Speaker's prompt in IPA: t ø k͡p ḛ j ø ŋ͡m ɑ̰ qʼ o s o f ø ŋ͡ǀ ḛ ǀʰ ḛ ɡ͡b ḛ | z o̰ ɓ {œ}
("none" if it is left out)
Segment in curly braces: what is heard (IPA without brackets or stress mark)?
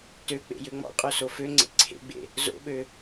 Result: ø